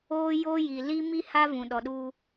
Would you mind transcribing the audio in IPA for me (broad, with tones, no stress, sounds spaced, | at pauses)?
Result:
o˦ j o˦ j i˨ l i˦ m i˦ h a˦ v ũ˨ ɗ ɔ˨ ɗ uː˦